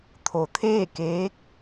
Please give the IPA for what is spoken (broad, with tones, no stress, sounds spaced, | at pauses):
t̪ʰ o˩˧ t̪ʰ eː˥˨ k eː˧˥ k̚